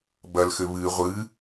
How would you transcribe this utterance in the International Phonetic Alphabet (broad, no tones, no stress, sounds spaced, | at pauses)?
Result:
b ɐ l x ɘ β ɨ ʁʷ ɨ